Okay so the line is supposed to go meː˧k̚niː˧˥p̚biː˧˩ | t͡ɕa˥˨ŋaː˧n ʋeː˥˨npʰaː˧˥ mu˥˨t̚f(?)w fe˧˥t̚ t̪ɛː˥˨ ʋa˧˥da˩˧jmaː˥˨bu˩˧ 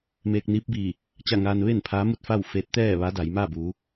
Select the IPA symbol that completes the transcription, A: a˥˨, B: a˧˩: A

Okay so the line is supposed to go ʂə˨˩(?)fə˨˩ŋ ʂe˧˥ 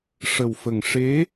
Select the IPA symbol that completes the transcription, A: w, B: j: A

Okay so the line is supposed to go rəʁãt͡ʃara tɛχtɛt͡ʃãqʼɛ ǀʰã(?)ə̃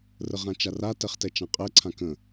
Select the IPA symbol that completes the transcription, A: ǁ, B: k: B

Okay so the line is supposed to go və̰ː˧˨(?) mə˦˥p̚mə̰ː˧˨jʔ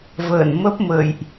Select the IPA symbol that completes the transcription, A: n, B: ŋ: A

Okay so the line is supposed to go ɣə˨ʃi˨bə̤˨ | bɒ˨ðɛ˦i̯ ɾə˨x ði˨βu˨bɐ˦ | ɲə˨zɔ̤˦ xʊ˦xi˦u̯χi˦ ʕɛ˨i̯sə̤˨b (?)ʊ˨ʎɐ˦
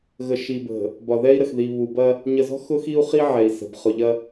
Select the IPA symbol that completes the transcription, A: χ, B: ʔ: A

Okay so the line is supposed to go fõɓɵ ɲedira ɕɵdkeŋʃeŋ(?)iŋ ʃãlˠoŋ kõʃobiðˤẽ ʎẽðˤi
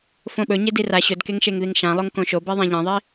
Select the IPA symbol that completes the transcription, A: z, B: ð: B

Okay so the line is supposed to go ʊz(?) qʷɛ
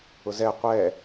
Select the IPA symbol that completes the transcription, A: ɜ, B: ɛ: B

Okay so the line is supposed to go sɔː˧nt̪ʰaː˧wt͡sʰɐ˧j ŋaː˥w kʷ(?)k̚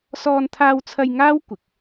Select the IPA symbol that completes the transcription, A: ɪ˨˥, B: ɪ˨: A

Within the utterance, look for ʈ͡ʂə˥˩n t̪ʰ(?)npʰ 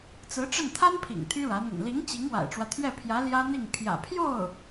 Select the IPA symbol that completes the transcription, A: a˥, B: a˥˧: A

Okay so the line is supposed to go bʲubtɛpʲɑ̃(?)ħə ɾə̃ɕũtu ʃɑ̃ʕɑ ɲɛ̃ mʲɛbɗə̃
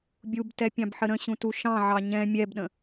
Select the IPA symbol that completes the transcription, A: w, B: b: B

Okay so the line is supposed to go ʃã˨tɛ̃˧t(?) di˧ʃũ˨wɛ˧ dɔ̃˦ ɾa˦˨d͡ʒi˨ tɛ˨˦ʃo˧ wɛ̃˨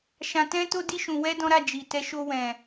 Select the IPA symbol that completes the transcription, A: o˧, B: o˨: A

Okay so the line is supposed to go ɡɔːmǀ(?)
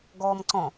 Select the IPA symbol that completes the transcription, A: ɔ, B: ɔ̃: B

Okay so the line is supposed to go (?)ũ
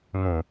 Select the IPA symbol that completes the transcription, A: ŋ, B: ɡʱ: A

